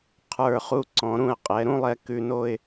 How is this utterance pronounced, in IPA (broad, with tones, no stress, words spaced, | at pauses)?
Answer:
qʰə˞˧˩χu˧ ǀɔ̃˩˧ɾũ˧˩ə̯ qʼɛ˩˧ɾũ˥lˠɛ˧ kʉ˧no˥˧ɪ̯